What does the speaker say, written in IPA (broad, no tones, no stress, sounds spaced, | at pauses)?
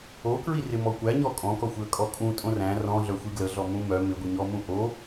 o k ɹ i r ɪ m ɔ kʷ æ ɲ ɔ kʼ ɔ̃ k ɔ xʷ ɪ ə̯ kʼ ɔ kʼ ũ tʼ õ r æ̃ r ɔ̃ ɮ œ xʷ i ɡ l ə ɮ ɔ m ũ m œ m ɪ ɡʷ i ɲ ɔ m ũ ʔ o